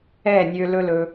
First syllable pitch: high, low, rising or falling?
falling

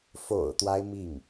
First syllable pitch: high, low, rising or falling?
low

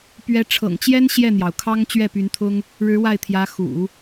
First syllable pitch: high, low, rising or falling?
rising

